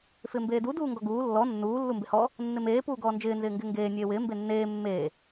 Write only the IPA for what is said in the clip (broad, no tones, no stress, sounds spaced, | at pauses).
f ɪː m b eː d u d uː ŋ ɡ ɔ ɡ uː lː ɔ nː uː lː u m b ɪ h ɔ | nː ɪ m eː p uː ɡ ɔː n d͡ʒ ɪː n z ɪː ŋ ɡ ɪː ŋ ɡ eː nʲ eː w ɪː m b e nː eː mː eː